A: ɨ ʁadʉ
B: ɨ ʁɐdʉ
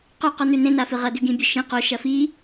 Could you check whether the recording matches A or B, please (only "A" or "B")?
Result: B